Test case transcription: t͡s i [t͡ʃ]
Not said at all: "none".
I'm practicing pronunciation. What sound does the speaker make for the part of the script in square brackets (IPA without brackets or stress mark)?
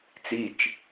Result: t͡ʃ